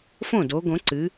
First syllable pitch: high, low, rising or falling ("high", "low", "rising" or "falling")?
falling